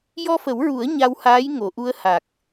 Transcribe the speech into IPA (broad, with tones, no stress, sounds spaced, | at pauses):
j ɔ˧ f ə˨˩˦ w ɹ u˨˩˦ ə̯ ɲ a˧ w h aː˧˥ j ŋ o˨˩˨ ʔ u˧ ə̯ h a˨˩ k̚